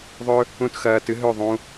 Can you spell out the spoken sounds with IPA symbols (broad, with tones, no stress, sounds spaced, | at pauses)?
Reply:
ðˤ ɵ˦ | ũ˦˨ t x ɐː˧ t ɨ˦ ɦ ɵ˦˨ ðˤ ũ˧